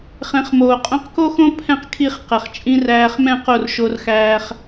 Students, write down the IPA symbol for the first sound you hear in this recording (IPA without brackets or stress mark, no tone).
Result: χ